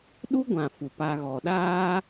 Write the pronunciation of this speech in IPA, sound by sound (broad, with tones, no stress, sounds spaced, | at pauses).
ɗ u˦ ɡʷ ã˨ f u˨ p a˧ ɣ ɔ˨ ɗ aː˦